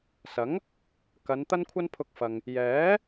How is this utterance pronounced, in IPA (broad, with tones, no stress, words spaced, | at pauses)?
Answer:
sɐ˨˥ŋ | kɐ˨˧n t̪ɐ˥nkʷʰɐ˥npʰʊ˧k̚fɐ˨ŋ | jɛː˨˥